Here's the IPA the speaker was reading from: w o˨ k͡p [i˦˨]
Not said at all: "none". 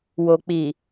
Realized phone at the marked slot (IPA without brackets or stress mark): i˨